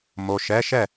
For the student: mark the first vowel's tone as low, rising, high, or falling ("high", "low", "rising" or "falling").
low